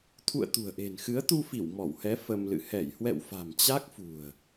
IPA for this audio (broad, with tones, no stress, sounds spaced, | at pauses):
t̪ʰ ṵ˧˨ ə̯ t̪ ṳ˨˩ ə̯ ʔ e̤˨˩ n x ɨ˨˦ ə̯ t̪ u˧ f i˧˩ w m ɔ˧˩ w h ɛ˨˦ f ə˧ m l ɨ̰˧˨ h ɛ˧˩ j h w ɛ̰˧˨ w f a̤˨˩ m t͡ɕ a˦˥ k̚ f ṳ˨˩ ə̯